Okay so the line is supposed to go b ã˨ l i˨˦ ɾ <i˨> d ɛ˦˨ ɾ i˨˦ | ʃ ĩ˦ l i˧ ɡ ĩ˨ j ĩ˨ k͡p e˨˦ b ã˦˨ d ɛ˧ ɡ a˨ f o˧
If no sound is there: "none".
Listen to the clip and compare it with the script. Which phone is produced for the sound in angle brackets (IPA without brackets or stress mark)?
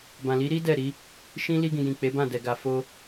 i˦